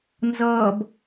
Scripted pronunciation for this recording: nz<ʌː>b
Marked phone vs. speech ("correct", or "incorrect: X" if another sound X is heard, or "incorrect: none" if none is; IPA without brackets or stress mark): correct